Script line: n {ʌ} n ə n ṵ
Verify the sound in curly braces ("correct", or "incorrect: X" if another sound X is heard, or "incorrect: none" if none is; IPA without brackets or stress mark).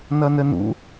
correct